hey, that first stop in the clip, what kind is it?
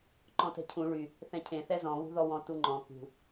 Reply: click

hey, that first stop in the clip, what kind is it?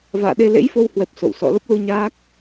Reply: implosive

